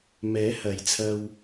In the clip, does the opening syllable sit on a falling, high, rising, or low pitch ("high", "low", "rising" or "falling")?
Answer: rising